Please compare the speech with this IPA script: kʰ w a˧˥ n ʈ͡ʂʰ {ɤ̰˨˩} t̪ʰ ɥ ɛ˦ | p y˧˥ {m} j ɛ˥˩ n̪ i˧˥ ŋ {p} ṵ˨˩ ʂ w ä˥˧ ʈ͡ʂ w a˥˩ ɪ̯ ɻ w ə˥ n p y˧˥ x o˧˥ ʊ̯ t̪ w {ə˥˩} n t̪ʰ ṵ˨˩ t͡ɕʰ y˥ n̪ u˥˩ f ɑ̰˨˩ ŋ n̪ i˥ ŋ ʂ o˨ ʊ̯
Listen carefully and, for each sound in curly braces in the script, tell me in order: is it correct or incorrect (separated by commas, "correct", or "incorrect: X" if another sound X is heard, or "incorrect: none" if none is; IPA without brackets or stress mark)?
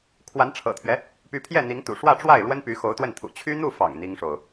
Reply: correct, incorrect: pʰ, incorrect: t̪, correct